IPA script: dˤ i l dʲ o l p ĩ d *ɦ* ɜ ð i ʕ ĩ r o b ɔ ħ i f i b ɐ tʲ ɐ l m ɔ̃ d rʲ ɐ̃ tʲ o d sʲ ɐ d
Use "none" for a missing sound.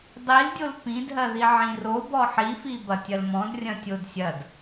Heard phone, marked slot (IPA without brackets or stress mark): ɦ